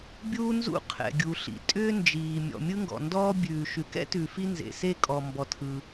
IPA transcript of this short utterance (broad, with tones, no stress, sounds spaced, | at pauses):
bʲ uː˥ n z ṵ˥ qʰ ɛ̰˩ ɡʲ u˩ ɬ ḭ˩ tʼ ʏː˥ n d͡ʒ iː˩ mʲ ɔ̰˩ mʲ ɯ˥ ŋ ɡ ɔ̰˩ n d ɔː˥ bʲ ʉː˩ ʃ ʉ˩ k ɛ̰˥ t ʉ˩ f i˥ n z ḛ˩ s e˥ kʼ ɔ˩ m b ɔ˩ tʰ ɯ˩